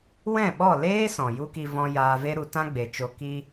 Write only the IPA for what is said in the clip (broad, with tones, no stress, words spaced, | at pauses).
wɛ̃˦˨ɓɔ˦˨ leː˦ sɔ̃˨ju˦ki˧ vɔ̃˧ jaː˧ve˦ɾu˧tã˦ ɡ͡be˨t͡ʃo˧ ki˧